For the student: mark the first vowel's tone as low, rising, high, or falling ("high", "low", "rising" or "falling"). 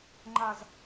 low